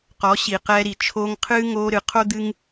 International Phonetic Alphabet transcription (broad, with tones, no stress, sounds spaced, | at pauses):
q ɔ˨˦ ɕ i˨ q ɛː˧ ɾ i˨ t͡ʃʰ oː˧ ŋ qʰ ɨː˦ ŋ oː˧ ɾ ɨ˨ qʰ o˦ d̪ ɨ˦ ŋ